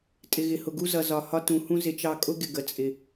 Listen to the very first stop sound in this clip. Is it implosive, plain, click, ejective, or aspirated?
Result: ejective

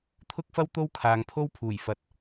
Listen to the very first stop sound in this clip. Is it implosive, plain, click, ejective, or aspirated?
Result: aspirated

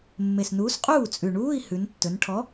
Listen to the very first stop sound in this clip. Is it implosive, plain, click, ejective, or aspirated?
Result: ejective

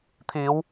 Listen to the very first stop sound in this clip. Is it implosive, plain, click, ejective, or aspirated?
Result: aspirated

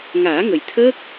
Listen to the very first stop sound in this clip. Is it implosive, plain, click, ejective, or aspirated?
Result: aspirated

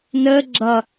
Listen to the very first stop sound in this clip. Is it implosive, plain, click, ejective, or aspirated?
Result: click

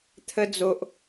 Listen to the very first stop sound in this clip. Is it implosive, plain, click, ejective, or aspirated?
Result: aspirated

